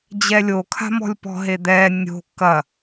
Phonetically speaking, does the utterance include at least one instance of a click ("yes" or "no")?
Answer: no